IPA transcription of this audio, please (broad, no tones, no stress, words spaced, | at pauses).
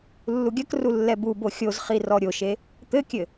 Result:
lːuɡʲɐkru lːɛbubo xʲozχi rɔɾʲoʃe | t̪ɘkʲɘ